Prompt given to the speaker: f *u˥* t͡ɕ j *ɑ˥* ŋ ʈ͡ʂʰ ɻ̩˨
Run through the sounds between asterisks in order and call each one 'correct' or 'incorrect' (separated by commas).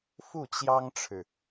incorrect, correct